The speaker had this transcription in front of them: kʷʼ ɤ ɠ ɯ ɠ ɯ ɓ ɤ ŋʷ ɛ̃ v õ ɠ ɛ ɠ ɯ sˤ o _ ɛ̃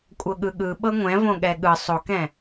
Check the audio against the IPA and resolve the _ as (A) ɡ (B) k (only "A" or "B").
B